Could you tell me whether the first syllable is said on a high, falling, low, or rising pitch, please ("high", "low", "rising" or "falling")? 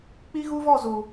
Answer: high